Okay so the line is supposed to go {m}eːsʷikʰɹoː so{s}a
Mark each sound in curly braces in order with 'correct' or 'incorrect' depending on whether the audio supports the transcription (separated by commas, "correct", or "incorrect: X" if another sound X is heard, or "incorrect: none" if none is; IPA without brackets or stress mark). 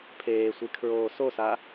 incorrect: pʰ, correct